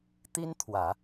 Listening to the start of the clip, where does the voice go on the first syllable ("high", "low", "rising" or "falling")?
high